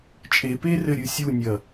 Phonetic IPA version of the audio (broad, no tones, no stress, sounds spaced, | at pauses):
t͡ʃʼ e p e r ɘ ɾʲ ɨ sʲ u nʲ ɐ